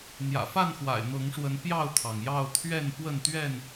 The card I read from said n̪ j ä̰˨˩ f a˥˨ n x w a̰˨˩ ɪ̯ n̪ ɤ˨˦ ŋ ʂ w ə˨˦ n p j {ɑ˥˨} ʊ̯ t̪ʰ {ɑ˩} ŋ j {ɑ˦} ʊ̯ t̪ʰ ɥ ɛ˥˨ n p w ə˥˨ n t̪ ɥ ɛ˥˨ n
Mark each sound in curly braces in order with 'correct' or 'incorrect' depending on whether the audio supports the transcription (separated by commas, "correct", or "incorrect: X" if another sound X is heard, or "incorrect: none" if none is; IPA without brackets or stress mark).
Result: correct, correct, incorrect: ɑ˥˨